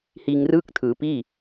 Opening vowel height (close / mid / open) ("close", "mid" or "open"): close